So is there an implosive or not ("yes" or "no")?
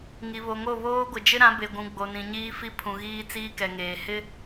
no